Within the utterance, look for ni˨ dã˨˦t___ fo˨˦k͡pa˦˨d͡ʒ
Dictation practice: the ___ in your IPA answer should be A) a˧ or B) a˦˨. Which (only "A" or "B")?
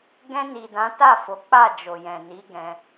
B